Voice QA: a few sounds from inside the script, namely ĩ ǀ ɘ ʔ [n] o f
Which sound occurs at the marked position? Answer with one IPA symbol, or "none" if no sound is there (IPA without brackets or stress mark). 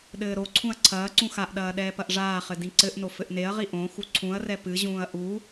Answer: n